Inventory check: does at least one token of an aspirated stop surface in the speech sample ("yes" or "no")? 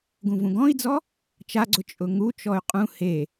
no